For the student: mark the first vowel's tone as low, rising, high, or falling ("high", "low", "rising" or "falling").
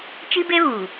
high